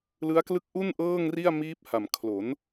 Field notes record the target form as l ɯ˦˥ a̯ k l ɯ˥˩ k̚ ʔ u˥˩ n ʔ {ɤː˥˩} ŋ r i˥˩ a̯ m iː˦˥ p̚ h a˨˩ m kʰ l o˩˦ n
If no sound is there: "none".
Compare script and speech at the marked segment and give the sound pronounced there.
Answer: ɤː˥˩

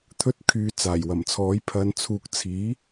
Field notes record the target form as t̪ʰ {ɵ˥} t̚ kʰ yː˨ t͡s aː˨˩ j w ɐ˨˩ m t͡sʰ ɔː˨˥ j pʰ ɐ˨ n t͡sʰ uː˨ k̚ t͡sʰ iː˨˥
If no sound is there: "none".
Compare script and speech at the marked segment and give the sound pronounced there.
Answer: ɵ˧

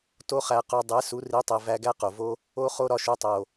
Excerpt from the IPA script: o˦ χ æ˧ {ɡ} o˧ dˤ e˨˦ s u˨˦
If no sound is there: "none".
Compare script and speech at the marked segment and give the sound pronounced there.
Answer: q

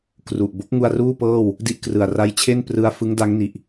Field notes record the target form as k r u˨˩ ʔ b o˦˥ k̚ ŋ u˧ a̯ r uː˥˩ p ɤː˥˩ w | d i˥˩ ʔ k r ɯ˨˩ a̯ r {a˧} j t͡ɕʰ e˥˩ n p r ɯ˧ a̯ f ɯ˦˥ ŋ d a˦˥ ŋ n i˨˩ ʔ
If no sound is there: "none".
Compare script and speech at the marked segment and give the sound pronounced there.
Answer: a˧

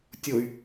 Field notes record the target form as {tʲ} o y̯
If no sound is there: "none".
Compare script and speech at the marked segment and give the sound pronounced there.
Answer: tʲ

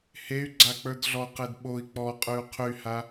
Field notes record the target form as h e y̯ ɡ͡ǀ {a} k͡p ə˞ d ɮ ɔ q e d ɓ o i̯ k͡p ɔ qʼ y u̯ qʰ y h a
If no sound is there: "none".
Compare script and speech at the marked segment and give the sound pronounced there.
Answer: a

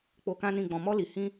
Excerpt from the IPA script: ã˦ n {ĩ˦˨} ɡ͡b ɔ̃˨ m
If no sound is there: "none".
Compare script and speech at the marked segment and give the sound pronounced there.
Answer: ĩ˦˨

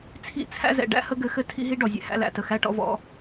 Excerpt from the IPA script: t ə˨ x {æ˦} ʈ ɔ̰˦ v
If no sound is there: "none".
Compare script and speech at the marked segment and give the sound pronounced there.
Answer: æ˦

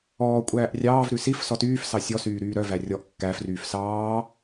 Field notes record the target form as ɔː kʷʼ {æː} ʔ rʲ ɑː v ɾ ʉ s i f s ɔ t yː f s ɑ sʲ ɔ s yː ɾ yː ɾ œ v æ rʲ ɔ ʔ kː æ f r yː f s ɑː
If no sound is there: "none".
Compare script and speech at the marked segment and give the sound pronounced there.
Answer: æː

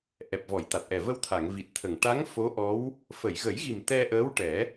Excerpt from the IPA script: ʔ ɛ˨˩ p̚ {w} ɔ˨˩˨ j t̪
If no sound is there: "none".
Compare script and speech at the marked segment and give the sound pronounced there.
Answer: v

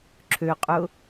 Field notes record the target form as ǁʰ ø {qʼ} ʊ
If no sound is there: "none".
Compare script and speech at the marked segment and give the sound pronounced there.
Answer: qʼ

